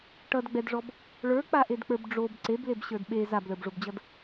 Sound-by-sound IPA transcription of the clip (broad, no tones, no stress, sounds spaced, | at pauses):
ʈ ʌ d ɡ͡b ɛ d ʐ ɔ b | ɭ ə˞ k͡p a ʔ e d k͡p ə˞ b ɖ͡ʐ o b ǀ e b l e b ɕ ə˞ d ɓ e z a b l ə˞ b ʐ o b d͡ʑ ʌ d